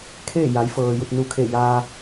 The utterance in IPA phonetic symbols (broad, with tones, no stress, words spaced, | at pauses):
kʰeː˥˨ja˩˧jfɤː˩ ju˧˩t̚nu˧˩kʰe˧˩ ja˧